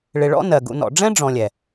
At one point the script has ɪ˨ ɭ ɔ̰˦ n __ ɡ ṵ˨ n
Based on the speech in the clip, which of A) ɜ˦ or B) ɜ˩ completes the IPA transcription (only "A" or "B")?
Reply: B